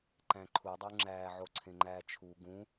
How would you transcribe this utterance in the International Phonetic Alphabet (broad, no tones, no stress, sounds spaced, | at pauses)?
ǃ æ̃ ǃʰ u dˤ u ŋ͡ǁ æː ʕ o ǀʰ ẽ ŋ͡ǃ æː t͡ʃʰ u ɡ ũ